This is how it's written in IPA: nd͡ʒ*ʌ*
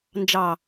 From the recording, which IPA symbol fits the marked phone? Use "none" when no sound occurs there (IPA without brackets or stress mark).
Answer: ɑ